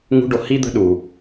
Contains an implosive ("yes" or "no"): yes